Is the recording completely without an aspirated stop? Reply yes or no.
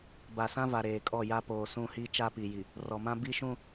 yes